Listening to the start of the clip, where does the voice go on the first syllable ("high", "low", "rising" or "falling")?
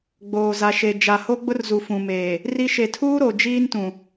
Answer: low